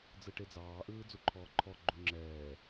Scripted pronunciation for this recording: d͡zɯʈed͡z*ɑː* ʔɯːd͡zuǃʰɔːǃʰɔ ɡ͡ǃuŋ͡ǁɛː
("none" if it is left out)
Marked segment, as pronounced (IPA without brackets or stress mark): ɑː